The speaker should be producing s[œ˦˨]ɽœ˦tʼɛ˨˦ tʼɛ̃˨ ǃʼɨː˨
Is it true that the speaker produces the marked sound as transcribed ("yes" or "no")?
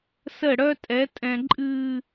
no